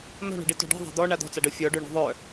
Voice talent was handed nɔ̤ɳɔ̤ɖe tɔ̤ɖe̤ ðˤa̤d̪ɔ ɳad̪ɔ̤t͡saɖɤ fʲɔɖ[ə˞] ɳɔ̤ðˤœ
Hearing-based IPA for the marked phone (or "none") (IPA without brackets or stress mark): ə˞